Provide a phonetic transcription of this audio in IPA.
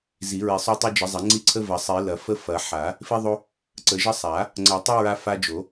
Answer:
z i˨˩˦ ɹ i˨˩˦ sˤ o˦ tˤ o˦ d͡ʒ ə˨˩˦ zˤ ɐ˨˩˦ ŋ͡ǀ i˦ ǀʰ ə˦ v ɐ˨˩˦ sˤ i˨˩˦ l ɐ˨˩˦ f ə˦ f ɐ˨˩˦ ħ a˨˩˦ | f i˦ ðˤ o˦ | ǀ ə˨˩˦ ʒ ə˦ sˤ a˨˩˦ | ŋ͡ǀ ɐ˨˩˦ tˤ ə˦ ɹ a˦ f a˦ d͡ʒ o˨˩˦

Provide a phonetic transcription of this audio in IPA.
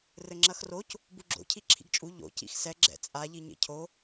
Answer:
r ɘ ŋ͡ǁ ɐ x r o c | b u ɡ͡ǁ o̰ cʰ i ǁʰ ḭ ɡ t͡ʃʼ u ʎ o̰ c ḭ x s ɛ ɡ͡ǁ ɛ̰ t͡sʼ a ʎ i ɲ ḛ cʰ o

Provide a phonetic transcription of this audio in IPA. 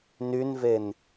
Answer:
n y n v e n

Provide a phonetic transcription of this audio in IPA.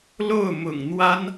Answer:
l o˥˩ ʊ̯ m ʊ̰˨˩ ŋ n̪ w a˥ n

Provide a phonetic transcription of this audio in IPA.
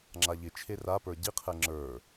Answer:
ŋ͡ǁ a ʎ ɪ t͡ʃʰ e r a p ə˞ ɟ i qʰ ɛ ŋ͡ǁ ə˞

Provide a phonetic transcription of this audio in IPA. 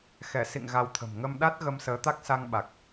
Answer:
x ɛ˧˩ s ḭ˧˨ ŋ ɣ a˧ w t̪ʰ ə̤˨˩ m ŋ ə˧ m ɗ a˦˥ t̚ ɣ ə˧ m s əː˨˦ t̪ a˦˥ k̚ s a˧ ŋ ɓ a˨˩ k̚

